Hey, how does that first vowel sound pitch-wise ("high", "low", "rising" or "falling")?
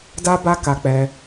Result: high